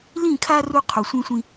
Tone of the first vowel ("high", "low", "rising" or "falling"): falling